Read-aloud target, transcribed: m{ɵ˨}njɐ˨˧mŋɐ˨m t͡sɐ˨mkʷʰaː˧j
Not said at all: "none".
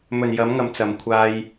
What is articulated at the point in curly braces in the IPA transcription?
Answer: ɵ˨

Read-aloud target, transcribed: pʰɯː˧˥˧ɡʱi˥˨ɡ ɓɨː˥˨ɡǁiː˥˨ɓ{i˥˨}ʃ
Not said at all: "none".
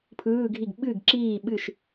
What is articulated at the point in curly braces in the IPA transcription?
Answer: ɨ˥˨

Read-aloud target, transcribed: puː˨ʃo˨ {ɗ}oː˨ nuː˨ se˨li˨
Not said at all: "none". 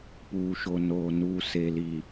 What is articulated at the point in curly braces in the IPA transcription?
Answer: n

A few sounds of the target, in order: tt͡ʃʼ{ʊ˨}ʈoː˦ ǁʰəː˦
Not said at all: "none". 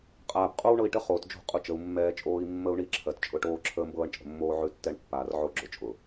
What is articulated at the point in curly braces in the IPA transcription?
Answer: ʊ˦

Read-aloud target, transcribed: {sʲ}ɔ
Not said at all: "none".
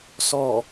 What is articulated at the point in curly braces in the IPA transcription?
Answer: s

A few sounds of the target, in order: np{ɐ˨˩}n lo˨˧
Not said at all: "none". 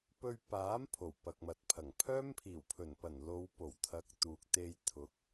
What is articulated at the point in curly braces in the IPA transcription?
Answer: ɐ˨˩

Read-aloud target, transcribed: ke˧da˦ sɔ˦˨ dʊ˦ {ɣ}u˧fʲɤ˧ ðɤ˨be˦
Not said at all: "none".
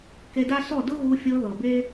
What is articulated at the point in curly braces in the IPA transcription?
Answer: ɣ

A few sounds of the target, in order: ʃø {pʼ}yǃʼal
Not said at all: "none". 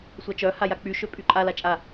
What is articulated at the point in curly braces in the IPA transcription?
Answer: pʼ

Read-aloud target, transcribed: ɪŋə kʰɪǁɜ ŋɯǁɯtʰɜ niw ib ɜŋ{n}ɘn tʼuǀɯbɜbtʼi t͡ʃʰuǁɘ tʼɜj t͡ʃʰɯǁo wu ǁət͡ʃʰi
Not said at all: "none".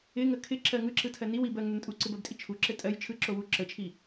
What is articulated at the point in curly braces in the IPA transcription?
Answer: n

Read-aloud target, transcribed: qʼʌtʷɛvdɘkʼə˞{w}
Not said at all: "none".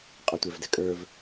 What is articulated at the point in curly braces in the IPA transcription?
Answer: v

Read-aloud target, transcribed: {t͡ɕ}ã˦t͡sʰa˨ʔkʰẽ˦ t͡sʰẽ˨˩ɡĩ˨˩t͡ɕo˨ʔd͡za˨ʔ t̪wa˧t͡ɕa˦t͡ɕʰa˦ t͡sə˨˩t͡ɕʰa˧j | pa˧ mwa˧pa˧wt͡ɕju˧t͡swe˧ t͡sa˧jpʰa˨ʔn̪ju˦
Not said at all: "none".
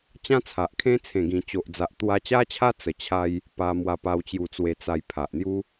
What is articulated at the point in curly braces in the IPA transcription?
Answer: t͡ɕ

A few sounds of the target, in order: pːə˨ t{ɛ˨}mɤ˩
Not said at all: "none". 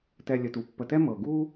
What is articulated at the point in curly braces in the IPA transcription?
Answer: ɛ˦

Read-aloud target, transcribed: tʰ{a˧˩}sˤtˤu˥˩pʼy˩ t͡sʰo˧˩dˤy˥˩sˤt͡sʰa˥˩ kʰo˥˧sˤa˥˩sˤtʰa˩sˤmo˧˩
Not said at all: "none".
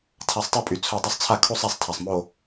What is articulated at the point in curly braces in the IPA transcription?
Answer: a˧˩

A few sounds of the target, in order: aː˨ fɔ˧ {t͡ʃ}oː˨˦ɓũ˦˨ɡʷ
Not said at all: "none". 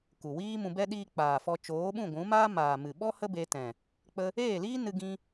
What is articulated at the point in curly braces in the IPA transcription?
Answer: t͡ʃ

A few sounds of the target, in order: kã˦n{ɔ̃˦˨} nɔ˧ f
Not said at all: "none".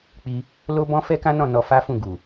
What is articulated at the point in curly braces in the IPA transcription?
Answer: ɔ̃˦˨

